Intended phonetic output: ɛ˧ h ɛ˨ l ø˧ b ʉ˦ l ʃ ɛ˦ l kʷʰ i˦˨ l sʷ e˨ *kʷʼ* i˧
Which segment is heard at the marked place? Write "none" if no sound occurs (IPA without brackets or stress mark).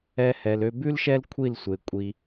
kʷʼ